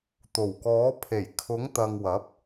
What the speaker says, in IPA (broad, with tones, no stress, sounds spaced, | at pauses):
t̪ o˨˩ w k ɔː˨˥ pʰ e˨˩ j kʰ ʊ˨˥ ŋ t̪ ɐ˨ ŋ w ɐ˨˥ p̚